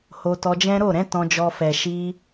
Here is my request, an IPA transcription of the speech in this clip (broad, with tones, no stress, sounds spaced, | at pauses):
h o˧ t ɔ˧ d͡ʒ ɛ̃˦ ɾ o˦˨ ɾ ɛ̃˨˦ t ɔ̃˧ d͡ʒ ɔ˧ f ɛ˨ ʃ i˧